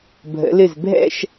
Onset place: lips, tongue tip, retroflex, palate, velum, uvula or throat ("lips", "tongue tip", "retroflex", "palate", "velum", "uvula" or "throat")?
lips